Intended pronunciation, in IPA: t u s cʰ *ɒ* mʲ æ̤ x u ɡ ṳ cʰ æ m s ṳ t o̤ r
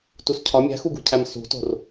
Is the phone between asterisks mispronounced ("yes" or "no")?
no